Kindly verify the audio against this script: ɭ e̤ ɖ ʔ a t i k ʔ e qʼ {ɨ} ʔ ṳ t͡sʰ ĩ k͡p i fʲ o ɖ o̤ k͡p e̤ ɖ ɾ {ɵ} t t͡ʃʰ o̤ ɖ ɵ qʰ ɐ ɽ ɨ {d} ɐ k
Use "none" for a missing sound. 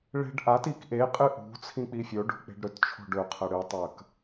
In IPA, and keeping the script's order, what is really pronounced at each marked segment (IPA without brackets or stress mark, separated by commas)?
ɨ, ɵ, tˤ